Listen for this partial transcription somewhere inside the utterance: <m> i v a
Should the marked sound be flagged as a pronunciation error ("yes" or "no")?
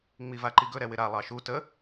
yes